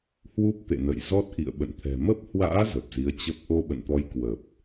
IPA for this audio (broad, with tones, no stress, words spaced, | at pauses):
hwu˦˥p̚t̪ḛ˧˨nə̰˧˨j zɔ˦˥t̚ʔḭ˧˨ə̯ ɓə̰˧˨nt̪ʰɛ̤˨˩ mə˦˥p̚hwa̰ː˧˥ zə˨˩p̚zi˨˦ə̯t͡ɕə˦˥p̚ ʔo˧ɓə̰˧˨nt̪ɔ˨˦j kwə˨˩p̚